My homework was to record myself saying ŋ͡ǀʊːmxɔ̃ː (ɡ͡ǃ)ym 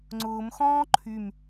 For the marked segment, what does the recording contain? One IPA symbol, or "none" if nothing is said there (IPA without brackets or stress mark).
ǃʰ